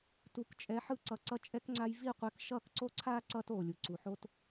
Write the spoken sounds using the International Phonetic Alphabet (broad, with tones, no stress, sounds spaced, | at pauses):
t u˨ k t͡ʃʼ ɛ˨˦ ħ ɯ˧ ǀ ʌ˨ ǀ ʌ˧ t͡ʃʼ ɛ˧ k ŋ͡ǀ a˧ j v i˦˨ qʷ ɛ˧ k ʃ ʌː˦˨ k ǀ o˦ ǀʰ aː˦ ǀ ʌː˦ t oː˨ lʲ u˨ ǀ u˨ ħ o˦ t